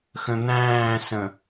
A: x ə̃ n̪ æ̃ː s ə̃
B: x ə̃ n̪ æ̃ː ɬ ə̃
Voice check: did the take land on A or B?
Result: A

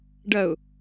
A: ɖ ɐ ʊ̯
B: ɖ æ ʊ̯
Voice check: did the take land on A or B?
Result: A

